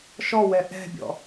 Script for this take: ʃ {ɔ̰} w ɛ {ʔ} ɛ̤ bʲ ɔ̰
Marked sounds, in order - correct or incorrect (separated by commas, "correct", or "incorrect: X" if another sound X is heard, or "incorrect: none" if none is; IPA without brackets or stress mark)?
incorrect: ɔ, correct